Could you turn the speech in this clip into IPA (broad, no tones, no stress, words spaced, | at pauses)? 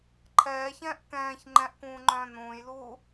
ǃʰɛːçɛ̃ːʔ kɛ̃ːç ŋ͡ǃɛ̃ʔkũːŋ͡ǃœ̃ː nũːjluː